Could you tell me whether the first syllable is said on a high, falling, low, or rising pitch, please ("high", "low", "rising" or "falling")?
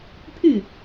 falling